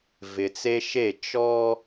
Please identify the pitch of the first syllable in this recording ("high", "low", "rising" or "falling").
low